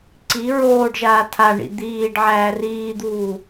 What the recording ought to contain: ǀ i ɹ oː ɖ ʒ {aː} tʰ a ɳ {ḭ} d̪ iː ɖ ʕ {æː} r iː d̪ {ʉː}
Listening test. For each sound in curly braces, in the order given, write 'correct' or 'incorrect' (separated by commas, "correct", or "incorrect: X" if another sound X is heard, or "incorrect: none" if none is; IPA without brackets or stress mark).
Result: correct, correct, correct, incorrect: uː